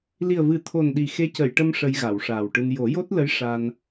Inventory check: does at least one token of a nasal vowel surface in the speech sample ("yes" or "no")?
no